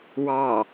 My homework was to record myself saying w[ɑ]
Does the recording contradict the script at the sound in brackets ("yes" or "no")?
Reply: no